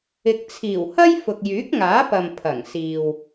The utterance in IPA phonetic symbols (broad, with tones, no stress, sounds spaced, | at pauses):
ɪ˨ k̚ t͡sʰ iː˨˩ w h ɐ˥ j f ʊ˨ k̚ j yː˨˥ k̚ ŋ aː˨˥ p ɐ˨ m pʰ ɐ˨˩ ŋ s iː˨ w